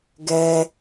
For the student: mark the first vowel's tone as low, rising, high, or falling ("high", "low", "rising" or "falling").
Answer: low